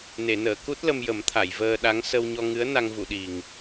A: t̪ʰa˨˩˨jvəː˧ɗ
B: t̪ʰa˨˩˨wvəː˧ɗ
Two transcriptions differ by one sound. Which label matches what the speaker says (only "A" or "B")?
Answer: A